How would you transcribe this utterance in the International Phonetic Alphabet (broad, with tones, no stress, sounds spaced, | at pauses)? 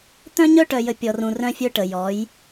t̪ œ̃˦ ɲ œ˦ ʈ œ˨ j ə˨ pʲ ɔ˨ r ũ˨ r œ̃˦ fʲ œ˦ ʈ ə˨ j ɔ˨˦ j